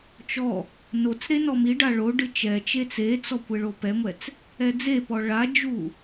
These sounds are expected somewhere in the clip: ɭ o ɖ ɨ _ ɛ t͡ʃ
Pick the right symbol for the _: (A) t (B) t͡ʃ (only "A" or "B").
B